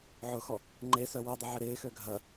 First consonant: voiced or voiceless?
voiced